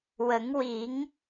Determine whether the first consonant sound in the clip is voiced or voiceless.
voiced